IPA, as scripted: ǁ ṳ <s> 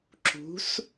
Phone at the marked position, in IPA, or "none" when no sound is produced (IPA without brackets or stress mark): s